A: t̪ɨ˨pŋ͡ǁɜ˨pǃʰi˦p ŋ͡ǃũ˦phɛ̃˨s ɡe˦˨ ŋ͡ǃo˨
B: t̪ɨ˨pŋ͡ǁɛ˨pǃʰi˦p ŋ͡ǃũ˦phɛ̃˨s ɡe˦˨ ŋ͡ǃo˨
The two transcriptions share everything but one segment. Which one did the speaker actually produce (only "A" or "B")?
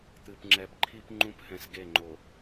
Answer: B